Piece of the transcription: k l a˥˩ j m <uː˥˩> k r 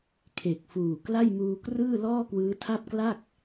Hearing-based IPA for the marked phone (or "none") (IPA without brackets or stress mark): uː˧